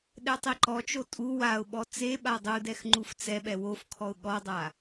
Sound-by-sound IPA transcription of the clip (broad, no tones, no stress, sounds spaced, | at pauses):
ɗ ɛ tˤ i ǃ ɔ t͡ʃ o tʼ u w a ʊ̯ ɓ ɔ t͡s e ɓ a dˤ u d ɛ x ŋ͡ǃ u f t͡s ɛ ɓ ɛ w o f kʰ ɔ ʊ̯ ɠ ɔ dˤ a